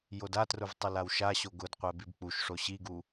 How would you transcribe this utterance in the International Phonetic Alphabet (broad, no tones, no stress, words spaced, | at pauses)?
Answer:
jodatrʊv tˤʊlawʃaɕo ɡʊdqʷɛ bibk͡puʃʂo ɕiɡu